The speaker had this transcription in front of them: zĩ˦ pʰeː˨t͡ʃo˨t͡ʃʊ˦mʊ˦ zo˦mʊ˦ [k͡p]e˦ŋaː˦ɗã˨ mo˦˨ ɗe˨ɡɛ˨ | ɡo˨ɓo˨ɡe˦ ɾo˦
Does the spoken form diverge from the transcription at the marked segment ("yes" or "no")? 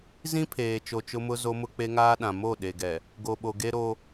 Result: no